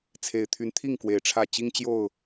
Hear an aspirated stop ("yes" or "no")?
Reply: yes